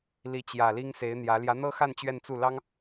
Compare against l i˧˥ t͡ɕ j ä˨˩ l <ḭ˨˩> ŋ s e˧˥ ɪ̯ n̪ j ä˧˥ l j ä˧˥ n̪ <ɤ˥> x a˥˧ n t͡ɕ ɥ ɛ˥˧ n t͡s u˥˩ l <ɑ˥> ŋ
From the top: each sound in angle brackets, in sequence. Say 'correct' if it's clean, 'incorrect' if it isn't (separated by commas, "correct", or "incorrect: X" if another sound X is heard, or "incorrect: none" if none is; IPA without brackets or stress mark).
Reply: incorrect: i˥, correct, correct